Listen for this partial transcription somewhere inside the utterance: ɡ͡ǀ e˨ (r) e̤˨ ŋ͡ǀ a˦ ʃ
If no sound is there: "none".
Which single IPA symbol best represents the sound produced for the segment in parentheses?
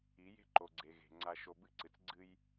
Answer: ɣ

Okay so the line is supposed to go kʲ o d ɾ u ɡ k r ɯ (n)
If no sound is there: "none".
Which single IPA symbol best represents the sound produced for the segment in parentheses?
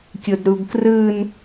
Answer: n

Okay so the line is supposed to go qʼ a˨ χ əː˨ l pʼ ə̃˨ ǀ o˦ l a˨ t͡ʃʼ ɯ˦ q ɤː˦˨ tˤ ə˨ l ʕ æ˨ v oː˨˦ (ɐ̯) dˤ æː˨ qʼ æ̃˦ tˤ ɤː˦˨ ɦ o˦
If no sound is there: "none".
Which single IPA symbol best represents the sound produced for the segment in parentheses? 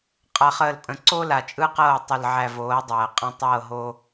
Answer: ɐ̯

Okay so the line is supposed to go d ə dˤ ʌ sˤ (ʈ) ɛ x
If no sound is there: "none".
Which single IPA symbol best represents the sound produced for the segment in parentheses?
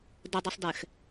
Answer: d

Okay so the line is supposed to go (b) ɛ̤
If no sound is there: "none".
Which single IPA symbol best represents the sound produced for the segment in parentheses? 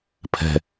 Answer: pʰ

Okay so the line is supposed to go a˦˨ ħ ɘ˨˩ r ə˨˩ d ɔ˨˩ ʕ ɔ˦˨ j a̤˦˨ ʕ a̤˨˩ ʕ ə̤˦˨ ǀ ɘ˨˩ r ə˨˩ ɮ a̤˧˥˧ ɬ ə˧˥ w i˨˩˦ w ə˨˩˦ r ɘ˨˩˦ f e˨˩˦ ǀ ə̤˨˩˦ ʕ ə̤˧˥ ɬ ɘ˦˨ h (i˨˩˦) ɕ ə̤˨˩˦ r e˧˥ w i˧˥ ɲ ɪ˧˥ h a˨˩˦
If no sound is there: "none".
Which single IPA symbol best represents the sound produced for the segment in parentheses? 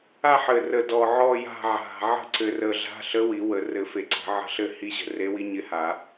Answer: i˧˥˧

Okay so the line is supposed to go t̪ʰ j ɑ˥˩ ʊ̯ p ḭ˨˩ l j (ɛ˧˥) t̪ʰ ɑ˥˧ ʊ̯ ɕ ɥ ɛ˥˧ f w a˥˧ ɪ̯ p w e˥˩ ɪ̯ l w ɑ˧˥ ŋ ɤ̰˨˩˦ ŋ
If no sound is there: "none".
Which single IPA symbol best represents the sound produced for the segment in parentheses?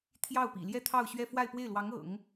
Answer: ɛ˥˧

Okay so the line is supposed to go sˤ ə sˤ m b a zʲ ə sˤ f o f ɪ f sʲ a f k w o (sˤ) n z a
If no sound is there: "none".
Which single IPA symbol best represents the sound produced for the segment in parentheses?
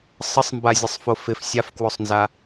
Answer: sˤ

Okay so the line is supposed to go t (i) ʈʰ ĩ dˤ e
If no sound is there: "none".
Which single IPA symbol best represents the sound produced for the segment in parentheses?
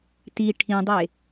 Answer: i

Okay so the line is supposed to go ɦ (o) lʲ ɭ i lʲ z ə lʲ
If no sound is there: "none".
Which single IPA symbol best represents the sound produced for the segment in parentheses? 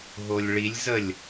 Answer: o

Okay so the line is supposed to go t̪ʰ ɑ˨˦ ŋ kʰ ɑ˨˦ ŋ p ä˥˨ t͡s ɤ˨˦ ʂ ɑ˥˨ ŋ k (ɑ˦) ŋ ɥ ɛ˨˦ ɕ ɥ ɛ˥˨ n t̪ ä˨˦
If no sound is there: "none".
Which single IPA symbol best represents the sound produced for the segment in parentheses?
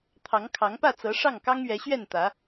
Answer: ɑ˦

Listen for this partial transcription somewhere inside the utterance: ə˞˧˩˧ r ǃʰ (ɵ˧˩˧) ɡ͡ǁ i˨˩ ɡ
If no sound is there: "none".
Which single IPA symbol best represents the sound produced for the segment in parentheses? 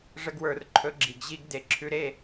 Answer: ɵ˩˥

